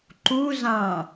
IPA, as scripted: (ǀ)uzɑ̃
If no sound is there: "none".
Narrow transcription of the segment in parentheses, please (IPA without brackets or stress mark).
ǃ